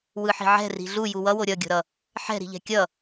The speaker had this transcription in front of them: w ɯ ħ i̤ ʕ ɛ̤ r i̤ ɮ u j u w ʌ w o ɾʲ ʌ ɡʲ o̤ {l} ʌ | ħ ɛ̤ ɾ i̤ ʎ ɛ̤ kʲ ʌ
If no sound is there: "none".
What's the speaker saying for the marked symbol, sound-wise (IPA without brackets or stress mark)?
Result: ɾ